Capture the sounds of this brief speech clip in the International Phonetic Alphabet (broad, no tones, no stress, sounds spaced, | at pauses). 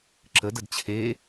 ǁ ə d ə d t͡ɕʰ e